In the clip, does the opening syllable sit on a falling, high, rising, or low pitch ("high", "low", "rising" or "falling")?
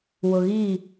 low